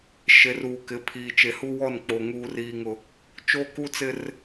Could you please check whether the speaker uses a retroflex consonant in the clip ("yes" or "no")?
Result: no